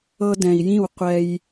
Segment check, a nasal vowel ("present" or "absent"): present